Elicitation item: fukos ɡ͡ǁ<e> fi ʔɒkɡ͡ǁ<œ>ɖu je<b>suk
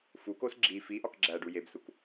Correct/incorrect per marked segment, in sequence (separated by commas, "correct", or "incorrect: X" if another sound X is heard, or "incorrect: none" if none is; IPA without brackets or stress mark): incorrect: i, incorrect: æ, correct